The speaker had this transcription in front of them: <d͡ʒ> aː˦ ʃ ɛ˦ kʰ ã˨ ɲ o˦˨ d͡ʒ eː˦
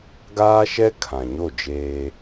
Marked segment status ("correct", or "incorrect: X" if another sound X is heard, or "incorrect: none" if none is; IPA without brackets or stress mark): incorrect: ɡ